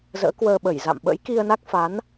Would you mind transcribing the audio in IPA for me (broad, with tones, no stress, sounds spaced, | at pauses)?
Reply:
z ə̰ː˧˥ k w əː˧ ɓ ə˧˩ j z a̰˧˨ m ɓ ə̰˧˥ j k i˧ ə̯ n a˦˥ k̚ f a˨˦ n